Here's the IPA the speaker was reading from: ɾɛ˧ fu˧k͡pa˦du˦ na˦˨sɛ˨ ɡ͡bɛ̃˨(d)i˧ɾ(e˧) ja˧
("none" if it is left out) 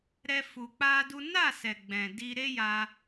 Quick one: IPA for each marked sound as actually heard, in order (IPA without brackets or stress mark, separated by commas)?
d, e˦